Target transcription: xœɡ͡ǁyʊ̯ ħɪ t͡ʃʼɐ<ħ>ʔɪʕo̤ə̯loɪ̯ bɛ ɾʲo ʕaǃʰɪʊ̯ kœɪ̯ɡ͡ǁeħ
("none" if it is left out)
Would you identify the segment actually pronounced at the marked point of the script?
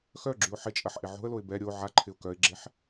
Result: ħ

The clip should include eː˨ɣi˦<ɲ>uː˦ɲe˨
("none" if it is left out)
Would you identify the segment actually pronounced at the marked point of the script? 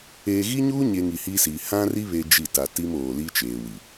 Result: ɲ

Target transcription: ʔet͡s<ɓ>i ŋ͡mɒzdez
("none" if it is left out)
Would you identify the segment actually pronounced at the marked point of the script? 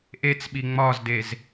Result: ɓ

